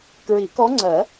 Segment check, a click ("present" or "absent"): present